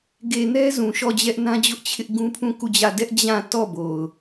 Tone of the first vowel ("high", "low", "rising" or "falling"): low